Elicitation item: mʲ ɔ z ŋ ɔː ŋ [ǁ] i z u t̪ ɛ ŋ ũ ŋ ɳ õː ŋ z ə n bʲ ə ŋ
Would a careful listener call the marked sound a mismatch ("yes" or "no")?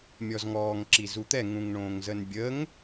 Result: no